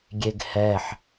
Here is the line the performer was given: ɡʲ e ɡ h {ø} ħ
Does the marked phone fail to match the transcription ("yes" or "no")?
yes